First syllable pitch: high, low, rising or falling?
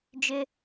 high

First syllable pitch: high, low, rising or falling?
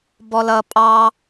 low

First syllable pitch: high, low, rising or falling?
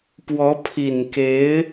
rising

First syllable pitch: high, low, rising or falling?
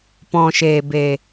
low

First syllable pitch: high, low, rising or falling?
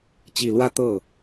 low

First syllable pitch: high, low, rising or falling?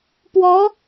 rising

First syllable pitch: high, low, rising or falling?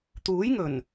rising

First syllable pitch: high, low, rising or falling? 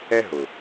high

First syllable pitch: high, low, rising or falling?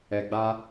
low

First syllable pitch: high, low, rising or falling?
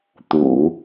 low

